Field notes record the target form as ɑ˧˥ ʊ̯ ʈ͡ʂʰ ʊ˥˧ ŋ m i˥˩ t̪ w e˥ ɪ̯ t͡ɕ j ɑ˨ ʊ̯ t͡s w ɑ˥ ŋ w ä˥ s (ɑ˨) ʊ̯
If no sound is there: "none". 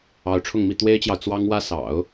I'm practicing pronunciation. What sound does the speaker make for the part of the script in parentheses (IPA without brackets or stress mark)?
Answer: ɑ̰˨˩˦